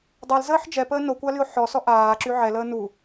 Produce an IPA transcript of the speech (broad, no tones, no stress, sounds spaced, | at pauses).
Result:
dˤ ɛ l z əː ħ d͡ʒ ɛ p əː n o kʷ a l y o̯ ħ ɔ s ɔ ʔ aː ǁ y ʕ ɛ l əː n u